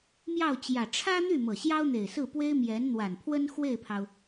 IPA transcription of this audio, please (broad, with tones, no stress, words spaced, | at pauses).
mjɑ˥˩ʊ̯t͡ɕjä˨˩ ʈ͡ʂʰä˥n̪y˥˩ mɤ˨˩ɕjɑ˥ʊ̯n̪e˨˩ɪ̯sɹ̩˥˩ pwe˥ɪ̯mjɛ˧˥nn̪wa˨˩npʰwə˥n xwe˥˩ɪ̯pʰɑ˩ʊ̯